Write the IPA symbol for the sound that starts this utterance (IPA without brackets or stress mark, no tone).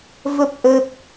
v